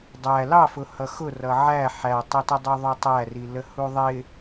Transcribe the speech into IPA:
dˤ æ l ɑ f ʊ h ʌ x ʊ r ʌ ʕ æ ħ æ tˤ ə t ə dˤ u ðˤ ʊ tˤ æ r i l ə h u ðˤ ɪ

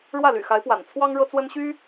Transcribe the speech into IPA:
ɻ w ä˥˩ l y̰˨˩ x a˧˥ ɪ̯ p w a̰˨˩ n t͡sʰ w ɑ˥ ŋ ɻ ɤ˥ t͡s w ə˥ n ɕ y˥

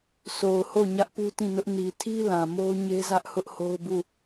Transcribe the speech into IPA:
sʰ o˨ ʊ̯ h o˦˨ ɲ ä˦ ʔ p u˦ t ĩ˦˨ n ʊ˦ ʔ n i˨ tʰ i˦ l ã˨ m o˦ ʊ̯ ɲ e˦ z ä˦ ʔ h ʊ˦ ʔ h o˦ ʊ̯ b u˦˨

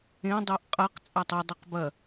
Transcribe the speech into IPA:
ẽ dˤ ʉ ʔ qʼ ɐ q t͡sʼ a tˤ ɐ dˤ ɐ q b ɐ

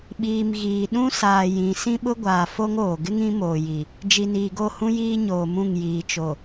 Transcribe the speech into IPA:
ɓ iː˨ m ɣ iː˨ ɗ ũ˦ s aː˨ j ĩ˨ s ĩ˦ ɓ ʊ˦ ɡʷ aː˨ f o˦ ŋ oː˨ ɡ ɪ˦ ŋ ĩ˨˦ m oː˨ j i˨ | d͡ʒ i˨ n iː˨ ɡ o˦˨ h ũ˦ j iː˦ ɲ oː˨ m ũ˦˨ ŋ j iː˨ t͡ʃ o˨

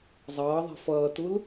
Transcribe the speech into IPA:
zˤ ʌː ðˤ i̤ f ʌː t u l

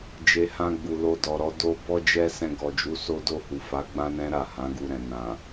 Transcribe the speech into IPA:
d͡ʒ e˨ h ã˧ ɡ͡b u˨ l o˧ d ɔ˨ ɾ ɔ˨˦ d o˦ b ɔ˦ d͡ʒ ɛ˦ s ɛ̃˧ ɡ ɔ˨ d͡ʒ u˨˦ s o˦ d o˦˨ h u˨ f a˨˦ ɡ͡b ã˦ n ɛ̃˦ ɾ a˦˨ h ã˨˦ ɡ u˧ ɾ ɛ̃˨ n ã˨

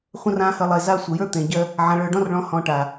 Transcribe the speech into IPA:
χʷ ə̃˦ r ã˦ h ə˧ lˠ e˨ z a˦˨ sʷ ə˨ j ə˞˦ t̪ ẽ˨ ɟ ɜ˦ | ʕ ã˨ ɭ ə˞˨ ɖ ɔ̃˦ r ɭ ɔ̃˨˦ h ɔ̃˧ ʈ a˨

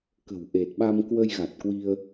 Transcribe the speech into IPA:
k ə̤˨˩ w ʔ e˨˩ t̚ ɓ a˧ m k w ə˧ j ɣ a˨˩ t̚ k w i˧ ə̯

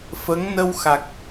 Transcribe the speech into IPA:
f ə˧˥ ŋ n ə˧ w x a˨˩ k̚

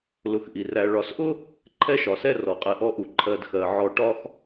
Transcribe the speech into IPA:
l ʊ˨ x ʔ i˩ r æ˨ ɭ ɒ˨ s ʔ ʊ˥ | ǃʰ ɛ˥ ʃ ɒ˩ s ɛ˥ r ɔ˩ qʼ ɛ˨ ʔ ɔ˥ ʔ u˨ ǃʰ ɜ˨ d x ɜ˩ ʕ ɔ˨ ʈ ɒ˥ x

